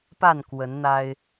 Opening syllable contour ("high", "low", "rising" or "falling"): falling